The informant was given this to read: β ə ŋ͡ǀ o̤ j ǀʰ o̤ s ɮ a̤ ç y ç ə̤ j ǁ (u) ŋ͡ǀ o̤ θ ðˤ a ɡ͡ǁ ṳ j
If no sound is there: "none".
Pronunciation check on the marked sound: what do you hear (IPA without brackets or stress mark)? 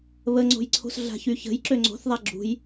ø